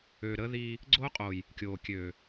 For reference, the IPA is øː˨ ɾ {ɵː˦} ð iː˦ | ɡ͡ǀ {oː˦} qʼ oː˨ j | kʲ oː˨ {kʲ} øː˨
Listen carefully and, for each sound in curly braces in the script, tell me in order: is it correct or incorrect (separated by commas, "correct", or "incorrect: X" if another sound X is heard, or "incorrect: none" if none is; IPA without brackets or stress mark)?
incorrect: əː˦, correct, correct